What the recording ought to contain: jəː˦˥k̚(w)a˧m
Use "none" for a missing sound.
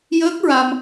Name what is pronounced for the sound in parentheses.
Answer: ɹ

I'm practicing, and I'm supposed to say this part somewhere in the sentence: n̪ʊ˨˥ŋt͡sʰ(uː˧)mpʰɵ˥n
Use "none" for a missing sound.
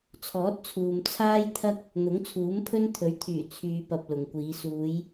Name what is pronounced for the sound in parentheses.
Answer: uː˨˥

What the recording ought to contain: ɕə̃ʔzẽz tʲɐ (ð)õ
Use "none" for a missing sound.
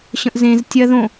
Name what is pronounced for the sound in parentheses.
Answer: ð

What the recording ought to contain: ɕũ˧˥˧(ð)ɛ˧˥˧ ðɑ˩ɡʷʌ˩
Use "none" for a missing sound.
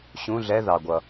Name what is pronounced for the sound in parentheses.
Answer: ɮ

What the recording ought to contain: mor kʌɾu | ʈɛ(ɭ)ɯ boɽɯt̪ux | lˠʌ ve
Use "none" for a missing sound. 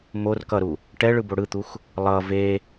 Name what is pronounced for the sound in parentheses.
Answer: ɭ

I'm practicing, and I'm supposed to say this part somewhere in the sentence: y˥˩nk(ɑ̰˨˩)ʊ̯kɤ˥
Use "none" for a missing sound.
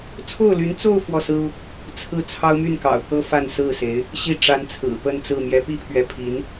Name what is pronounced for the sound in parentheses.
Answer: ɑ̰˨˩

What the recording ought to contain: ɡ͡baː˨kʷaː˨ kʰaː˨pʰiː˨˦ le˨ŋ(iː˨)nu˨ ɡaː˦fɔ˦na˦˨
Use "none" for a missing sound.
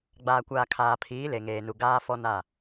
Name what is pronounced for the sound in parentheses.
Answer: eː˨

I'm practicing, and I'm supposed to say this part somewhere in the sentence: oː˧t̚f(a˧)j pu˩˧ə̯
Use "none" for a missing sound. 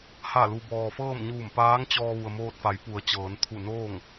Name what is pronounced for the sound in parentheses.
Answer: a˩˧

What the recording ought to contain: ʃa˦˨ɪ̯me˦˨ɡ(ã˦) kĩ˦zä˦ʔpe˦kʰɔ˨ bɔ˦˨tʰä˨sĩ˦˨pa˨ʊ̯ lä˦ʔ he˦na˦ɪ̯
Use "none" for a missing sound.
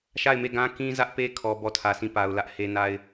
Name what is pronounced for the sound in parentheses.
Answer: ã˦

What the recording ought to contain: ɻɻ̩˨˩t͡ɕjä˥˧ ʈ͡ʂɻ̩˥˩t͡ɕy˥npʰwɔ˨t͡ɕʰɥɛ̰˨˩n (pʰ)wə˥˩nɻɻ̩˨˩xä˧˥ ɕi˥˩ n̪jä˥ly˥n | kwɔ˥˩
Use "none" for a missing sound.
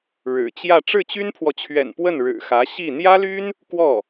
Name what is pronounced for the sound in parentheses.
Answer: p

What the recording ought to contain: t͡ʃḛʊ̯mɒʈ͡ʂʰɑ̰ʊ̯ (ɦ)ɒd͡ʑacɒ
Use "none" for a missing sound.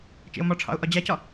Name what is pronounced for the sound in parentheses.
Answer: ʔ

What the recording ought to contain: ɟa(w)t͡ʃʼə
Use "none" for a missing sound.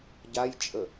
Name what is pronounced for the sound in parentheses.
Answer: j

